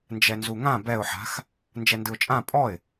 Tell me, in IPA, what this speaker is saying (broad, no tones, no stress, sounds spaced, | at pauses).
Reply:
n d͡ʒ ɛ n z u ŋ ã b ɛ ʊ̯ ħ a̤ x | n d͡ʒ ɛ n d ɯ ʊ̯ t͡ʃʼ ã pʼ ɔ ɪ̯